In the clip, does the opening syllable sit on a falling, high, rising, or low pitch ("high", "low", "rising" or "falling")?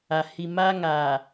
low